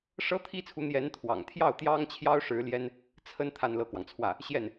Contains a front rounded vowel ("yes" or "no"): no